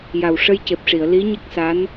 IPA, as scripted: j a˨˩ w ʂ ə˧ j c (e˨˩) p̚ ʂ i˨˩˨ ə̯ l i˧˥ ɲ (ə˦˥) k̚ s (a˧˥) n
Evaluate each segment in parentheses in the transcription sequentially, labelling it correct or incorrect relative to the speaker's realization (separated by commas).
correct, correct, correct